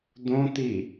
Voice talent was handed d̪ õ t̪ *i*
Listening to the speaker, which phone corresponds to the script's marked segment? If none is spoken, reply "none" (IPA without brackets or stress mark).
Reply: i